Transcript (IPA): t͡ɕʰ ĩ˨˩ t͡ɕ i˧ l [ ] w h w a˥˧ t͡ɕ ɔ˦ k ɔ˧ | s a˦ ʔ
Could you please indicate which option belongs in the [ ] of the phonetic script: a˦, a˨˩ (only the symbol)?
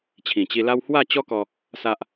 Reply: a˦